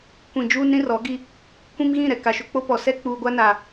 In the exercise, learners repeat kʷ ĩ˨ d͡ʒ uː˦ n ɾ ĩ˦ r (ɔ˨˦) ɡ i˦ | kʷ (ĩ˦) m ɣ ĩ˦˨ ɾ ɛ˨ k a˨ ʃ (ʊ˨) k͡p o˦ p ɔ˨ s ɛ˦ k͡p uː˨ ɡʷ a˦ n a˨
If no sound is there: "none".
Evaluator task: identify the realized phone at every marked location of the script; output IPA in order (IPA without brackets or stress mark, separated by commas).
ɔ˨˦, ĩ˦, ʊ˨